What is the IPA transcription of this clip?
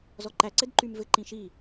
zɔǃæǀɘd ǃymvɘ ǃĩʃi

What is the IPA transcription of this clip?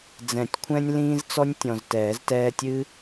d͡zɛ̃˨˩˦tʲkʷʰɛ̃˦nʲlĩː˦zt͡sɔ˦nʲ tʲɔ̃˨ztɛː˨˩˦ztɛː˦ tʲɨ˦

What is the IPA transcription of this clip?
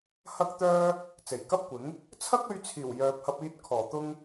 hɐ˥k̚ t̪œː˥ | t͡se˨˩j kɐ˥p̚kʷɪ˨˥ŋ | t͡sʰɐ˥k̚ɵ˧ɥt͡sʰiː˨˩w jœː˨p̚hɐ˧p̚iː˧t̚kʰɔː˨˩ t̪ʊ˥ŋ

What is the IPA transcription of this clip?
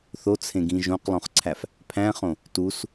θot͡sʰẽɡĩ ʒõqlˠõχǀʰæf | pʰæ̃χõ | tus

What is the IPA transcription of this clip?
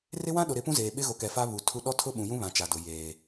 rɪ˦wã˦ɗʊ˨ ɾɪ˨˦pũ˦zeː˨ ɓɪ˦ɣo˨kɛ˨ fa˦ βu˨ tʰu˦ ɗɔ˦tʰʊ˦ɓũ˨jũ˦ βã˨t͡ʃa˨dʊ˨ jeː˨

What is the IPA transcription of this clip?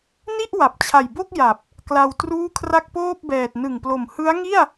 ni˥˩ʔ wa˨˩p̚t͡ɕʰa˨˩jbo˥˩k̚ ja˨˩p̚ | kla˧wtruː˥˩ kʰra˥˩k̚poː˥˩p̚bɛː˨˩t̚ nɯ˨˩ŋplo˨˩m hɯ˦˥a̯ŋi˥˩a̯

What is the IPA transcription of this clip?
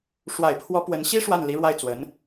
ʂwa˨˩ɪ̯pʰwɔ˧˥ pwə˧˥n ɕi˥ ʂwa˥˩nli˧˥ɻwa˥˩ɪ̯ t͡swə˧˥n

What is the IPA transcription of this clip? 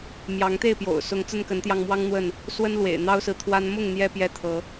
mjɑ˨˦ŋt̪e˥˨ɪ̯ pjo̰˨˩ʊ̯ sʊ˨˦ŋ t͡sə˦nkə˨˦nt̪jɑ˧ŋmwɑ˦ŋ n̪wə˥˨n | swə˦nlwḛ˨˩ɪ̯ n̪ɑ˦ʊ̯sɹ̩˨t̪ʰwa˦n mʊ˥˨ŋ n̪jɛ˦ pjɛ˥˨t̪ʰɤ˨˦

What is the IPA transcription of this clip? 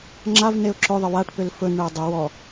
ŋ͡ǁav neʊ̯ǁɵðˤə waʈpʏl fɵnɳeə̯ dˤʏ wɔ

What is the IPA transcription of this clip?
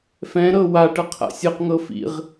fɛ̃ɾɤ wa ʈɤqʰa̰sʲɤqŋɤ fḭʁ

